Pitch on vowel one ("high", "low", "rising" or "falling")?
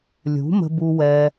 rising